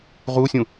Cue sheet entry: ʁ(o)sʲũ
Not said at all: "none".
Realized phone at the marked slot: u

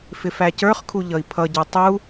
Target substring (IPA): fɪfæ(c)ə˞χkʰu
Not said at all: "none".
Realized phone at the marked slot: c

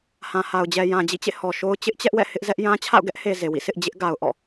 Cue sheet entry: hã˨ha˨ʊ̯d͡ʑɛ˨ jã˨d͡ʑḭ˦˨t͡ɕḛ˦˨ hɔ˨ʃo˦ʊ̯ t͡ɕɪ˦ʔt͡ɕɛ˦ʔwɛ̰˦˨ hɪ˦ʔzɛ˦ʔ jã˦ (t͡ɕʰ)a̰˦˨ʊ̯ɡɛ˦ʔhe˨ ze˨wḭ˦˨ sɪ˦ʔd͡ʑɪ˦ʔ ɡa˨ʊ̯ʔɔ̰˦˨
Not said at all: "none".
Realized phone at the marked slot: t͡ɕʰ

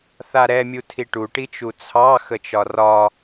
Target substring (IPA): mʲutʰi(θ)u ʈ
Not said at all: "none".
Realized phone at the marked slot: ʈ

